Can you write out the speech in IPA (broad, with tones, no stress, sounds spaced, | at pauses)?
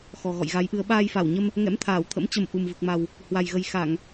x ɔ˨˩ ɣ ɔ̰˧˨ j ɣ a˨˦ j ʔ ɨ˨˦ ə̯ ɓ aː˧ j f a˧˩ w ɲ ə˧ m | ŋ ɛ̰˧˥ m t̪ʰ aː˧˩ w t̪ʰ ə̰˧˥ m t͡ɕ ə˨˩ m ʔ u˨˩ m v ɨ˨˩ k̚ m a˨˩ w | h w a˨˩ j ɣ ə˨˩ j x a˧˩˨ ŋ